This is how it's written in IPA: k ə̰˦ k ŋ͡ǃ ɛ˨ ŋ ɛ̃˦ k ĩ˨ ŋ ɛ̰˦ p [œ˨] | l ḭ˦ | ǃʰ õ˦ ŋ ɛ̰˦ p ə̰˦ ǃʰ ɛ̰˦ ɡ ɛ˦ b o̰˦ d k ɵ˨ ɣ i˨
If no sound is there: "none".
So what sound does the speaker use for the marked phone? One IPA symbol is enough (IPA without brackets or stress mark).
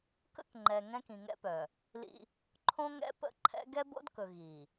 œ˨